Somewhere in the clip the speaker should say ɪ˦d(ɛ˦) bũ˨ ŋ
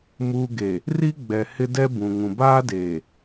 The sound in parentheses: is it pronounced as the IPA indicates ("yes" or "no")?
yes